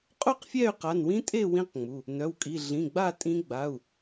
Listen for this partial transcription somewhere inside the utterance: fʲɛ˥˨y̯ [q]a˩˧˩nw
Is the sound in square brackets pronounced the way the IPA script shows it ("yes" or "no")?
yes